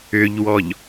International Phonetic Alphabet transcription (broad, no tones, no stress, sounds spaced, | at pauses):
ʏ ʎ w ɔ ʎ